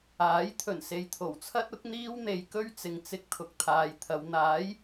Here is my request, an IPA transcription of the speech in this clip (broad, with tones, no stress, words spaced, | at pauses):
aː˨˥j t̪ʰɵ˨˩nse˨jt̪ʰo˨˩wt͡sʰɐ˥t̚ ʊ˨˥k̚n̪iː˥w n̪e˨˧jkɵ˥ɥ t͡sɪ˨ŋt͡sɪ˧k̚ t̪ʰʊ˨k̚t̪ʰaː˨jt̪ʰɐ˨˧w n̪aː˨˥j